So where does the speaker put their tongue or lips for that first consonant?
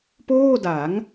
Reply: lips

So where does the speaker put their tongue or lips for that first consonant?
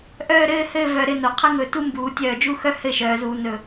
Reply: throat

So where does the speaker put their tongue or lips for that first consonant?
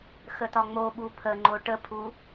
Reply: velum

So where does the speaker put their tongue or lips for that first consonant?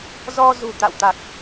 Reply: tongue tip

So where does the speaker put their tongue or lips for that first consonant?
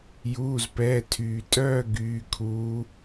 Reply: palate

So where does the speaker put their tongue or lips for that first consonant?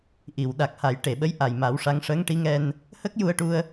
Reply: throat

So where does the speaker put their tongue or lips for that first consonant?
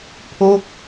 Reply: lips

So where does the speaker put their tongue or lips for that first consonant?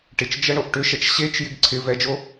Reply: retroflex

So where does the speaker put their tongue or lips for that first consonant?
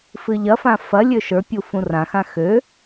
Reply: lips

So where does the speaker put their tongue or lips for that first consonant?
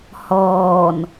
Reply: throat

